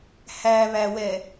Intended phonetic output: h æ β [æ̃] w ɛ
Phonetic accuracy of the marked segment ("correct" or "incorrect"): incorrect